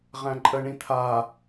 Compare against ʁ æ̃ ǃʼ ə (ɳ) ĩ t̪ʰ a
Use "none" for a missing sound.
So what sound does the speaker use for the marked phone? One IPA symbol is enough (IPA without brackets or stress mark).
ɳ